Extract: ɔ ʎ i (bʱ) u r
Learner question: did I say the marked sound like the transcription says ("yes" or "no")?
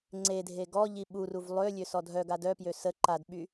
no